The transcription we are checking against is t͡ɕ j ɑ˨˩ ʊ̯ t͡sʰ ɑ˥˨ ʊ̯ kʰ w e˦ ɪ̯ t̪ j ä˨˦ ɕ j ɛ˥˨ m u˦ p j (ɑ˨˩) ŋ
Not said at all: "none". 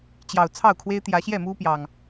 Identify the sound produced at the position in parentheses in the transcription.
ɑ˨˩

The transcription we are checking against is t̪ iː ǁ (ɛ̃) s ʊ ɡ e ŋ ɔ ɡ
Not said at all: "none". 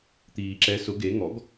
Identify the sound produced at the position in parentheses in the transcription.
ɛ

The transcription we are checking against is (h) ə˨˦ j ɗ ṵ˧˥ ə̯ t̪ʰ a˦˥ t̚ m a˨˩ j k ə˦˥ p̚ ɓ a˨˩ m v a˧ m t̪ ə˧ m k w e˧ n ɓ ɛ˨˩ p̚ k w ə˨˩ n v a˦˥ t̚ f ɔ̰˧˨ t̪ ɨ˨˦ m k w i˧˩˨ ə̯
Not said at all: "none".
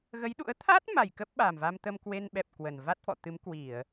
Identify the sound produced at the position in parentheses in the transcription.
ɣ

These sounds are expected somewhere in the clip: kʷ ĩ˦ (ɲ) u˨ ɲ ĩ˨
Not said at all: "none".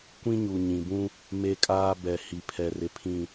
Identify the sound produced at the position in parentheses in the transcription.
ɲ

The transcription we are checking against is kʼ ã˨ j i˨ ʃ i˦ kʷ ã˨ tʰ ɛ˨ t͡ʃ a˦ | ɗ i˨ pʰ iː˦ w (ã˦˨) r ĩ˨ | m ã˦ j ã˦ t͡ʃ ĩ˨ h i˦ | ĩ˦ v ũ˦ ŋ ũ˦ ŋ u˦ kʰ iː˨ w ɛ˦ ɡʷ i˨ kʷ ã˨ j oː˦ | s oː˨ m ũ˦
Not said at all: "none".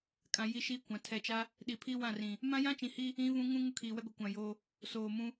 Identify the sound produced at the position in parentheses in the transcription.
ã˦˨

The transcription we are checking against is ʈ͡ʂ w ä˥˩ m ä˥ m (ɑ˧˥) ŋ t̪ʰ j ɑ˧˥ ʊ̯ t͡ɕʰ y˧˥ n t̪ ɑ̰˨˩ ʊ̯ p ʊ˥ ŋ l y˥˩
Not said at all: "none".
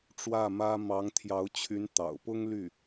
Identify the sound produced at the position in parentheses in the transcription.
ɑ˧˥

